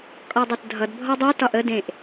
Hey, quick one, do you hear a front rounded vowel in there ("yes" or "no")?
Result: yes